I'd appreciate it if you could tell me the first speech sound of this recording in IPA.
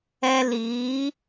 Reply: ɛ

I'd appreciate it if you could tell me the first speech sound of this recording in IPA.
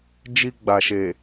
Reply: d͡ʒ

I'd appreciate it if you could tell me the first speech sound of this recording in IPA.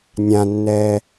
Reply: nʲ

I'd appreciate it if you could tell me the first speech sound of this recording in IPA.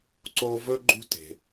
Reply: ǀ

